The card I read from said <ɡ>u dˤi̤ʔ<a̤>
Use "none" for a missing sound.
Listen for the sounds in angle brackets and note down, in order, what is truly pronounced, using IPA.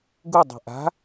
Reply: ɡ, a̤

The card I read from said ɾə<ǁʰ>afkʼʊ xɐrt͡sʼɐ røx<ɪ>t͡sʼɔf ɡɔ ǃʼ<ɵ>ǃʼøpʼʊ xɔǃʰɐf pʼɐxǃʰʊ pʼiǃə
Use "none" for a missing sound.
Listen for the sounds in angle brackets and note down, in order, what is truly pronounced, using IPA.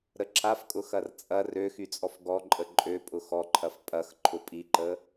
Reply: ǁʰ, y, ə

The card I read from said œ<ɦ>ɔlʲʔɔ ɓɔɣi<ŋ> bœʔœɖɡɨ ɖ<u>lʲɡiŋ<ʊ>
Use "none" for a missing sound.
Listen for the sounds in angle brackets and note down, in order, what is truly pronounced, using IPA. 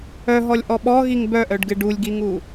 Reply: ɦ, ŋ, u, u

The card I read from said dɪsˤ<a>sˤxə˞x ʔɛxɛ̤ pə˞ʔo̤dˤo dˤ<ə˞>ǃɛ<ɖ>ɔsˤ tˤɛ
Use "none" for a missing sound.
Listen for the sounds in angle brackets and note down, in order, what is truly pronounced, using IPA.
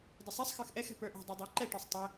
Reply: a, ə˞, ʈ

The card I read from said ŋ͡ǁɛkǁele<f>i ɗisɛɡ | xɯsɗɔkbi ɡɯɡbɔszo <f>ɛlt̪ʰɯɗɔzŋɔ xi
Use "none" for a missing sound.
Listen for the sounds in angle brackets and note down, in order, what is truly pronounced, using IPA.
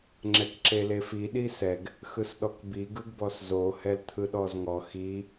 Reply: f, h

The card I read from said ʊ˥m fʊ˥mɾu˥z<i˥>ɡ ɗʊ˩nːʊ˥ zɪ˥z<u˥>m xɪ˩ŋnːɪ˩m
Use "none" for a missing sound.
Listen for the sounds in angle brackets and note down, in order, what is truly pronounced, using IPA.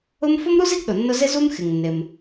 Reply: i˥, u˥

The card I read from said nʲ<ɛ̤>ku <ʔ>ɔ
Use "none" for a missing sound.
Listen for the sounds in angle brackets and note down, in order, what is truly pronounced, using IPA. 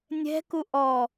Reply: ɛ̤, ʔ

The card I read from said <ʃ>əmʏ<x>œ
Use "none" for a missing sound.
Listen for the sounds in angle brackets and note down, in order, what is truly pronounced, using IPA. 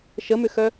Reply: ʃ, x

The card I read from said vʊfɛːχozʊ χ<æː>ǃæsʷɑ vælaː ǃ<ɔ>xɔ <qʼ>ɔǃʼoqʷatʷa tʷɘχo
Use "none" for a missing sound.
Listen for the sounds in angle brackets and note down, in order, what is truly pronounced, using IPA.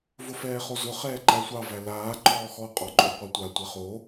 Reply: ɛː, ɔː, qʼ

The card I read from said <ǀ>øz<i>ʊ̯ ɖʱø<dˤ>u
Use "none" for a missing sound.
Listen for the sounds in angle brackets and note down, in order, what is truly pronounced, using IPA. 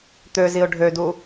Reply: t̪, i, d

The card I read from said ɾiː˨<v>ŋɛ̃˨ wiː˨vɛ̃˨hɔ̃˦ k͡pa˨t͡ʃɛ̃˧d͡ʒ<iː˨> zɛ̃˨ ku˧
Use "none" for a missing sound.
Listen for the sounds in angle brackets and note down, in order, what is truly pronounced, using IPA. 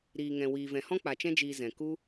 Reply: none, iː˨

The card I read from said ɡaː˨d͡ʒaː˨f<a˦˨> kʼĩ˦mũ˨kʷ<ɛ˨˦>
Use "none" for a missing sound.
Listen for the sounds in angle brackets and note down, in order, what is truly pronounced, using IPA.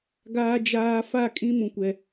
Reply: a˦˨, ɛ˨

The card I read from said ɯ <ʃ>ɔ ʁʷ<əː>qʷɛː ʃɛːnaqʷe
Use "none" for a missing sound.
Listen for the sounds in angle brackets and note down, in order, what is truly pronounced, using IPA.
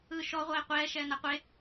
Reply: ʃ, ɛː

